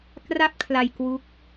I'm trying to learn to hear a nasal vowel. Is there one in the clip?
no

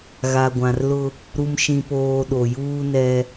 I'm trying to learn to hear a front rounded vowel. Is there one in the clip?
no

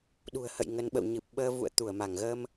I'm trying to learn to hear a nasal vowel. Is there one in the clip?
no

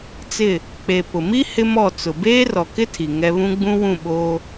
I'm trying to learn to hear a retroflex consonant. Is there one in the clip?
no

